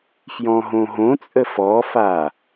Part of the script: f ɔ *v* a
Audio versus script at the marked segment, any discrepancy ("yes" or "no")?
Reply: yes